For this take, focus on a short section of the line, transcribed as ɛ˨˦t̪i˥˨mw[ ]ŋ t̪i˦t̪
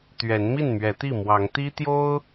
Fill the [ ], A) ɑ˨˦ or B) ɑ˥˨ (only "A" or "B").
A